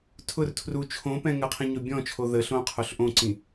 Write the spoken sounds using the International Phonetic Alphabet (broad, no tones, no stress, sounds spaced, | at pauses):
tʰ ʊ r tʰ r u t͡ʃʰ õ p ɛ̃ ŋ ə qʰ ĩ ɲ o bʲ ɔ̃ t͡ʃʰ o ð ə ɬ õ qʰ o ɬ ʔ õ ǀ ĩ